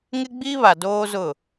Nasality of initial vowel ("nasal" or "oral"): oral